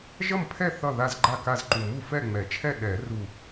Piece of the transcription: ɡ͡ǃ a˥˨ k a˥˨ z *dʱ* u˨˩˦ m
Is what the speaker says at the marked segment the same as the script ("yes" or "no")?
no